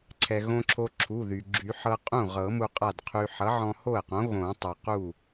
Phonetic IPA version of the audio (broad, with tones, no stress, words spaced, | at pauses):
ǀʰɛ˩ɣõ˧ǁʰo˧ ǁʰu˩˧˩ðy˩ ɡ͡ǁy˨˩˦ ħɤ˧qʼũ˥˩ʁɤ˨˩˦ mu˧qʼa˥˩dqʰy˧ ħʌ˨˥ʕɔ̃˧ho˥˩ə̯qõ˨˥ ɣõ˨˩˦tˤu˩ qu˥˩